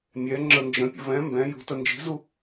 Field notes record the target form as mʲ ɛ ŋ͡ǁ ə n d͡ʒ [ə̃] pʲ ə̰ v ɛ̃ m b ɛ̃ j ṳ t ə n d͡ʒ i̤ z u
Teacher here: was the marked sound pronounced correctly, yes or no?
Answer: yes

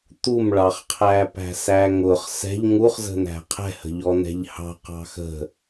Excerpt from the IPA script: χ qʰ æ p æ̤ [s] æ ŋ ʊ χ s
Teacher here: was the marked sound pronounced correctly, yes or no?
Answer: yes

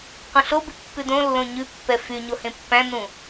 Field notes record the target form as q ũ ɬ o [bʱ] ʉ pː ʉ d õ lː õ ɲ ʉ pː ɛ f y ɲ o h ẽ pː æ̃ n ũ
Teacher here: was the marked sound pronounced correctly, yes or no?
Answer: no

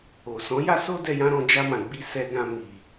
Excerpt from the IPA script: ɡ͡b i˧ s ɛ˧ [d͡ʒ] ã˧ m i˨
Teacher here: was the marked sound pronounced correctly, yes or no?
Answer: no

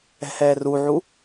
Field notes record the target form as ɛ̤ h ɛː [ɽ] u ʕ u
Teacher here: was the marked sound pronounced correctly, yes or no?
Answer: no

